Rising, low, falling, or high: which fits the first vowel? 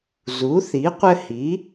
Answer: rising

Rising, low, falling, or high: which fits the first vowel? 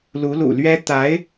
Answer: rising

